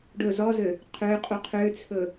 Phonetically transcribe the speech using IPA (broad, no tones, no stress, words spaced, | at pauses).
ɖɵ zɔzø | qʰøqʼu qʰøt͡sʰɵ